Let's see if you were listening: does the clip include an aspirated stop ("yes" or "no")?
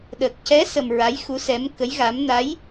no